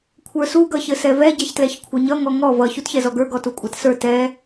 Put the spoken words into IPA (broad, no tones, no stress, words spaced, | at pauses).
kʷʰə˞su ɡʌçɘsɛvɛ ɟɛçtlɛçkʷʰʌɲʌ ŋɔŋɔ vʌ çutçɛzɔɡə˞ ɡɔtukʷʼatsə˞ tɛ